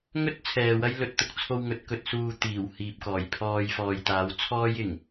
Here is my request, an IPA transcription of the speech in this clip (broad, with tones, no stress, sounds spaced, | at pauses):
ŋ ɵ˥ t̚ t͡sʰ ɛː˨ w ɐ˥ j l ɵ˨˥ t̚ t̪ ʊ˨ k̚ t͡sʰ o˧ w ŋ ɵ˨˥ t̚ k ɵ˨˥ t̚ s uː˧ t̪ iː˨˩ w h iː˨ p̚ k ɔː˨˩ j pʰ ɔː˧ j f ɔː˨ j t̪ aː˨˥ w t͡sʰ ɔː˥ j ɪ˨˩ ŋ